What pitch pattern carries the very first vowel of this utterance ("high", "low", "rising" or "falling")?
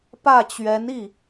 falling